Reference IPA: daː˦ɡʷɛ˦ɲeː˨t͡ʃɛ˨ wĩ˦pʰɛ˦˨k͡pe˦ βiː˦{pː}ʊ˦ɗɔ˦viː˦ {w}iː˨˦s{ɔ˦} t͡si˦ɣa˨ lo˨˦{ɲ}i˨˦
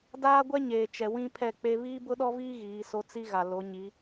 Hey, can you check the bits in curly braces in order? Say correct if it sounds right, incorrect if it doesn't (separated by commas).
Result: incorrect, incorrect, incorrect, correct